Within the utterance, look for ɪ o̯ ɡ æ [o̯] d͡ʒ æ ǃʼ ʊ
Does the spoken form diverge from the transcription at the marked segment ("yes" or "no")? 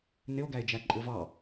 yes